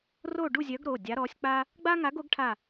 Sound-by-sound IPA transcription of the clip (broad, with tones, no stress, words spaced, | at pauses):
ro˥˧ɖu˥˧zʲœ˧˥ɡɾo˩˧˩ dʲa˧˥ɾɔ˧˥sʲ k͡pa˥ | ɡ͡ba˥ŋa˧˥ɡo˧˥ɡ ʈʰa˥˧